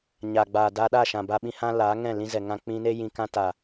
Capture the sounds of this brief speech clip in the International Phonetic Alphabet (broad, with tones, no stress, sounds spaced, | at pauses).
ɲ aː˨ ɡ͡b aː˨ d aː˧ ɗ a˦˨ ʃ ã˨ b a˧ ɓ ĩ˧ h ã˦ l aː˨˦ ŋ ɛ̃˦˨ l ĩ˧ z ɛ˨ ŋ ã˨ k͡p ĩ˧ n e˦ j ĩ˨ k ã˧ t a˨